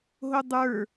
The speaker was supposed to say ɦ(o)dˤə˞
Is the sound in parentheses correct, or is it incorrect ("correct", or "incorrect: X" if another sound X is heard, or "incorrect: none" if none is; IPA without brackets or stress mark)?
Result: correct